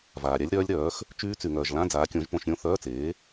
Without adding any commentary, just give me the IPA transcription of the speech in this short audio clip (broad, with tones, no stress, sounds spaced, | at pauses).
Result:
v aː˨ ɾʲ a˦˥ lʲ ɾ œː˦˥ lʲ ɾ œː˨˥ x | t͡ʃ yː˦˥ t͡s y˨ ŋ œː˨ ʒ l ã˧˥˧ d͡z aː˨˥ kʲ õ˨˥ ʒ p õ˧˥˧ ʃ ɾʲ õ˦˥ θ œː˧˥˧ t͡s eː˨˥